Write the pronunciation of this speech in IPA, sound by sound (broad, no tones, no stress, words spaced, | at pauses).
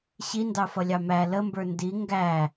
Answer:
ɕindɑfʌlʲɑ mæ ləmbə˞ ndi ŋɡæ